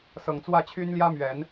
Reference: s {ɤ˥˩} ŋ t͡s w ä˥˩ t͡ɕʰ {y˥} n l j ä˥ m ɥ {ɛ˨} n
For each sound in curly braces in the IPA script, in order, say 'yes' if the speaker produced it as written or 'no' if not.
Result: no, yes, no

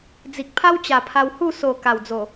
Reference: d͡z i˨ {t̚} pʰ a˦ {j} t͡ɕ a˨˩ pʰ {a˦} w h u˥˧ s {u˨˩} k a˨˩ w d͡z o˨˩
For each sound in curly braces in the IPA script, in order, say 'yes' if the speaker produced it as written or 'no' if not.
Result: no, no, no, no

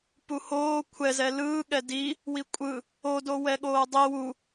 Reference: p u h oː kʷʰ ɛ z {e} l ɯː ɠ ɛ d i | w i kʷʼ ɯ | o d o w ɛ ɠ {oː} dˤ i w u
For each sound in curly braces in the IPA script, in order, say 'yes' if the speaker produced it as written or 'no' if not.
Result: no, yes

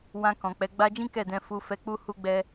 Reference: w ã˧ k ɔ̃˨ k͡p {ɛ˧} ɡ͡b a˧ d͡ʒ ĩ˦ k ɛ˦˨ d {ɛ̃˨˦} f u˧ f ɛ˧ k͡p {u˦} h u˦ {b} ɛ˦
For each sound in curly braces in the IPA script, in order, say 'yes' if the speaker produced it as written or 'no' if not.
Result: no, no, yes, no

